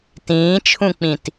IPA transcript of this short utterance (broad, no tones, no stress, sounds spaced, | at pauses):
t ĩː t͡ʃʰ ũ k͡p ĩ t